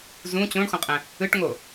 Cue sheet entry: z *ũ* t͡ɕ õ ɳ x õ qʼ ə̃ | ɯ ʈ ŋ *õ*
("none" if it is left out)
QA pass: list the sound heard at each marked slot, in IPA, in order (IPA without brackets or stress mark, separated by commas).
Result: ũ, o